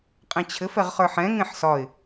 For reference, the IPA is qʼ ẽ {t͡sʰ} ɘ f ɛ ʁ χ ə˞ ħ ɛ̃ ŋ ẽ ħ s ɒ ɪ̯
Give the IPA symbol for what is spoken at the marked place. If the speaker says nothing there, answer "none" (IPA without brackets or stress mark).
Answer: t͡ɕʰ